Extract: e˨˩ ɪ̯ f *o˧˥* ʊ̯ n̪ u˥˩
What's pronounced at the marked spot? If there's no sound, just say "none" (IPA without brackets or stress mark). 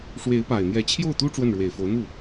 o˧˥